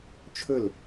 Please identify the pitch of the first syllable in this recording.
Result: falling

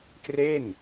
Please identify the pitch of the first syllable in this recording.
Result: falling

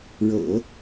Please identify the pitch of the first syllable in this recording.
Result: low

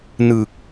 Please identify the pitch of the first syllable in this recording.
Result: low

